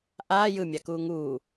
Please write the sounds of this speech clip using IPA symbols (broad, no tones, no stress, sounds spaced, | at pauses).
ʔ aː j ɯ mʲ a k uː ŋ uː